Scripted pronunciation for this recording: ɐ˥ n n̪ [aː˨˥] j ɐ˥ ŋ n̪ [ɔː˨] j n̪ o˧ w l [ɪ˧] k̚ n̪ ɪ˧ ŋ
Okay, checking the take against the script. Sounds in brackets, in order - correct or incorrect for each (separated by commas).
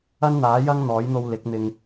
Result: correct, incorrect, incorrect